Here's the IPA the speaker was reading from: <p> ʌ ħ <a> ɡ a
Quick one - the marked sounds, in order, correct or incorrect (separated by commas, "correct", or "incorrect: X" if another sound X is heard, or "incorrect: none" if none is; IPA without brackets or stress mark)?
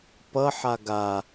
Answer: correct, correct